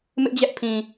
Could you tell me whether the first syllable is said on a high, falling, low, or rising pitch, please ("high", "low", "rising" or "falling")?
high